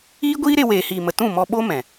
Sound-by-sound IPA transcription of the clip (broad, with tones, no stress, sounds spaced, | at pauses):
iː˦ ɡʷ iː˦ ɾ e˧ w eː˨ h iː˨ m ə˨ t ũ˦˨ m ɔ˧ ɓ o˦ m ɛ̃˨